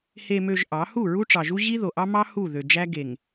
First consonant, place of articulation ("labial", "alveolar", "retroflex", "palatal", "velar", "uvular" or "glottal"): glottal